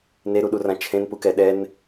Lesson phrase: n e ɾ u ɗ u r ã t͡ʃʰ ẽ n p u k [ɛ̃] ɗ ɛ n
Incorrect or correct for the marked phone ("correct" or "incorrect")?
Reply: incorrect